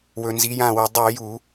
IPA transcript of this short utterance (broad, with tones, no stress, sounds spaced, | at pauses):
w ɵ˧ n z i˨˥ j ã˥˨ w ɵ˧ dˤ ʉ˧˩˧ j u˧˩˧